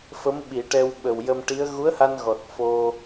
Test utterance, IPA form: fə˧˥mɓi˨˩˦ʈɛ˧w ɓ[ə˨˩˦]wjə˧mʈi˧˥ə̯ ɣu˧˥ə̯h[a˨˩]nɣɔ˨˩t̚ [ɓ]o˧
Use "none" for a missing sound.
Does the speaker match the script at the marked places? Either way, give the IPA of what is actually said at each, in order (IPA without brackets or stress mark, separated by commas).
ə˨˩, a˧, f